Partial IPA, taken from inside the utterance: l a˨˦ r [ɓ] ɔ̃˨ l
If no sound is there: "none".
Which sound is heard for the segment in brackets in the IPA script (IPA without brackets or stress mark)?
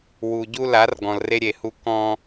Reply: ɡ